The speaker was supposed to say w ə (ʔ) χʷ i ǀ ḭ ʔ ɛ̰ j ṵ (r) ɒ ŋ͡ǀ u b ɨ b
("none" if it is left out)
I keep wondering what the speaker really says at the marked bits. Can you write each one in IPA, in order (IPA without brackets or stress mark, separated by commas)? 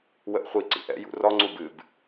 ʔ, r